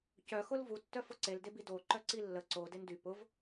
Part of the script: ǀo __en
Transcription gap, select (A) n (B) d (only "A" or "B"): B